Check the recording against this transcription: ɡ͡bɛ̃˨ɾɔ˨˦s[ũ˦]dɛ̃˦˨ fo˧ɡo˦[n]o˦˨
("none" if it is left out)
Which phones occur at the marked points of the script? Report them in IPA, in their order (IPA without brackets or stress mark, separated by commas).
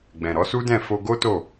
u˦, t